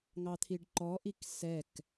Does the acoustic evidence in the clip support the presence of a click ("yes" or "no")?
yes